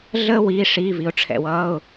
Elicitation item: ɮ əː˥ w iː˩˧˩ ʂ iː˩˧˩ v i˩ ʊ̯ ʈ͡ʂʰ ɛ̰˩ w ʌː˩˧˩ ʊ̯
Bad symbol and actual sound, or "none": none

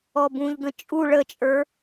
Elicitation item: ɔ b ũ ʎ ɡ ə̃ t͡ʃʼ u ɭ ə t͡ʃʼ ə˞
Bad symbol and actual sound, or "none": none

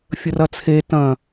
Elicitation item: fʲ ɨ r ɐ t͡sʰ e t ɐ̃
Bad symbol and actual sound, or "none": ɨ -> ə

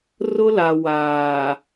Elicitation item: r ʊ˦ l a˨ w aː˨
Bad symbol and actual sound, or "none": none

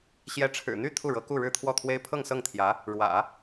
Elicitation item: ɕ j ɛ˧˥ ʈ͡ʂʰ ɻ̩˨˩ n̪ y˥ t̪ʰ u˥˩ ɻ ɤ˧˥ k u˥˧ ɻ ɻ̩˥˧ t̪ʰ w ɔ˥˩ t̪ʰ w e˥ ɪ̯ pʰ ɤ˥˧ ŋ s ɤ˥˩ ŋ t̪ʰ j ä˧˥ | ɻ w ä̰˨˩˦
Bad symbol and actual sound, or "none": y˥ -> y˥˧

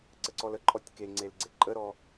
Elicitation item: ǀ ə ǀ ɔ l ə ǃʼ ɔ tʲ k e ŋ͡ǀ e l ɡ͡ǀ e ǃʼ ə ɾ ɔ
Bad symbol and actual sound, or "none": none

